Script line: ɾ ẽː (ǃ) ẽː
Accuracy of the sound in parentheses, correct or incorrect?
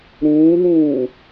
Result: incorrect